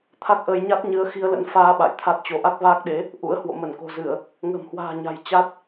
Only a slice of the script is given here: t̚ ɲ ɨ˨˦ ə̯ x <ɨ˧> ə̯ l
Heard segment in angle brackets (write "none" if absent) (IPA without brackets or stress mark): i˧